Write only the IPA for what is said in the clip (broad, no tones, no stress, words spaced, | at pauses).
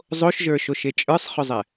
zˤoʃʒə˞ʃoʃe t͡ʃʼə˞sˤχʏzˤɛ